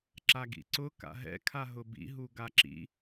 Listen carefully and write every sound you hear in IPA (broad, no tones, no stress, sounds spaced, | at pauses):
ǁ a ɡ ḭ ǀ ʊ k a̰ ɦ ɛ̰ kʰ a ɦ ʊ b ḭ ɦ u ɡ a ǁ ḭ